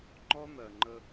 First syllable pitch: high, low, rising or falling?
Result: high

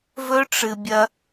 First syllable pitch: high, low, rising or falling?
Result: high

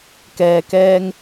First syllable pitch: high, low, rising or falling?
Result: low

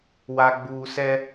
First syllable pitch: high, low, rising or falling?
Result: low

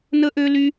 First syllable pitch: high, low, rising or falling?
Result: high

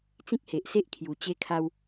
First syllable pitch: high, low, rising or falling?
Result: high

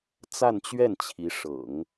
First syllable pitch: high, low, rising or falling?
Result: falling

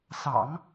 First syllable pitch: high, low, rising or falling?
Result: low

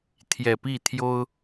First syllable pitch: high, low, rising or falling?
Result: low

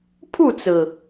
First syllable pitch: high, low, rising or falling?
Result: falling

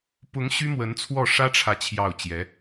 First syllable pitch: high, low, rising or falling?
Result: rising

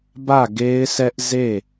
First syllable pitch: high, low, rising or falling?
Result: falling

